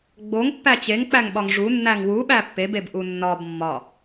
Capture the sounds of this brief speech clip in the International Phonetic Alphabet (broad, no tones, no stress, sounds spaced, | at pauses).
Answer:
ɡ͡b o ŋ pː æ t͡ɕ e ŋ k͡p æ ŋ ɓ ɒ ŋ ʐ u nː æ ŋ w u ɓ æ pː e b e b ʔ u nː ɒ b mː ɒ